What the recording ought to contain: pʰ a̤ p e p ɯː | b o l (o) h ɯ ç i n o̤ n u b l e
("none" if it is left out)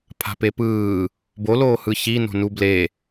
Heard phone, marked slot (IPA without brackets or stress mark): oː